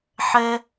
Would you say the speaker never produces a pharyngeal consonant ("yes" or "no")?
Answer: no